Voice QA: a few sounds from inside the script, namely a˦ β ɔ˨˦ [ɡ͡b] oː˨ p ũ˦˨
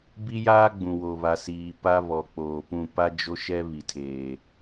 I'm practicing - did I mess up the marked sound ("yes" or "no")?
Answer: yes